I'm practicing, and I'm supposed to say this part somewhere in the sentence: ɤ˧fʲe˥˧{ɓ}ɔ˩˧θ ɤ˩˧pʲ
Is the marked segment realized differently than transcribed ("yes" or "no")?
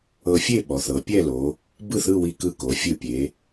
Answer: no